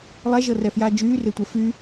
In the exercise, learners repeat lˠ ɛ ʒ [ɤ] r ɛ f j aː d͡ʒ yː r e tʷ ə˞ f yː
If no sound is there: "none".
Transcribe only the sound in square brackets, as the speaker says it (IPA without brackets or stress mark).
ɤ